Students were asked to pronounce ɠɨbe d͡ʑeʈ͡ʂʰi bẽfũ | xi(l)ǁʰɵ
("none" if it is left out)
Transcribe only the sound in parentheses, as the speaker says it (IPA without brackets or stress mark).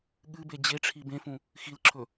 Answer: l